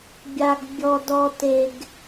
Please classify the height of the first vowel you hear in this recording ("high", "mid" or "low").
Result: low